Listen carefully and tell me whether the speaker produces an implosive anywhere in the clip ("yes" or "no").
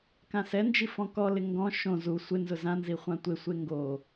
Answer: no